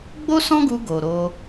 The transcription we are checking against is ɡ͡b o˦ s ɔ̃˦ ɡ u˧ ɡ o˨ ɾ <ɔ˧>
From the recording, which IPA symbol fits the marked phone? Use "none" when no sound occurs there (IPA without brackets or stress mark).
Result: o˧